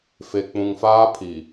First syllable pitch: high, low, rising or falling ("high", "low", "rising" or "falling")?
low